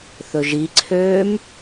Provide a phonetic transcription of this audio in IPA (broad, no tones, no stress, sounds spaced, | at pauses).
θ ɵ ʒ i ǀʰ øː m